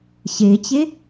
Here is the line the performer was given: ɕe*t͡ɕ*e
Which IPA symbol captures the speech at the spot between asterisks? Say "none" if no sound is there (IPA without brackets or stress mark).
t͡ɕ